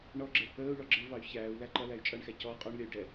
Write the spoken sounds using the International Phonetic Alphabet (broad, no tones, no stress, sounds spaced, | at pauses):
ɳ ɔ ɡ͡ǁ ɪ | əː u̯ ɭ ɔ ɡ͡ǁ ɪ v ɑ y̯ ç æː u̯ l æ ǃ ʌ l æ y̯ t͡ʃʼ ʌ ɳ x æ c ɔ qʼ ɔ ɳ lʲ ʌ y̯ ɖ ɛ